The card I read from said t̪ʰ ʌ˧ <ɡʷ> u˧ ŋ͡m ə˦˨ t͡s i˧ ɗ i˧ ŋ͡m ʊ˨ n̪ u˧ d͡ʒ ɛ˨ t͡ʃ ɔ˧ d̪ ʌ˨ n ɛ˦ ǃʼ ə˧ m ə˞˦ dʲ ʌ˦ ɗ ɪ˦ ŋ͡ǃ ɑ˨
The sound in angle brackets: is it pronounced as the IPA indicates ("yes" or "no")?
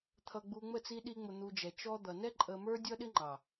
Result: no